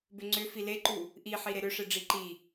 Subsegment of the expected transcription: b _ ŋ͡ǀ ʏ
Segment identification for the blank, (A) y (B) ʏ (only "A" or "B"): B